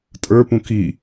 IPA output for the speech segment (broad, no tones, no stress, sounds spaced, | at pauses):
tʼ ə˞ p ũ k i